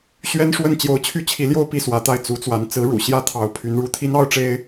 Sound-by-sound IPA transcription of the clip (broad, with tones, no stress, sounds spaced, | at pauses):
ɕ ɥ ɛ˥ n ʂ w ə˥˩ n t͡ɕ j o˧˥ ʊ̯ t͡ɕʰ y˥˩ t͡ɕʰ i˧˥ l j o˥˧ ʊ̯ p i˥˩ s w ä˧˥ t̪ a˥˩ ɪ̯ t͡s u˧˥ t͡s w a˧˥ n t͡s ɹ̩˧˥ ɻ ṵ˨˩ ɕ j ä˥˩ t̪ʰ ɑ˧˥ ʊ̯ pʰ y˧˥ n ɻ u˧˥ t̪ʰ i˥ n ɑ˥ ʊ̯ ʈ͡ʂ e˥ ɪ̯